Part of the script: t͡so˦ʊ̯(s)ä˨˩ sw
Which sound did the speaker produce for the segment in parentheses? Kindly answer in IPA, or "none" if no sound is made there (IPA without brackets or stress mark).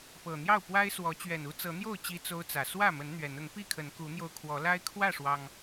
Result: t͡s